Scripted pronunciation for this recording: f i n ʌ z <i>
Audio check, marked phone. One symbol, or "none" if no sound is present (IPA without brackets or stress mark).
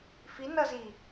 i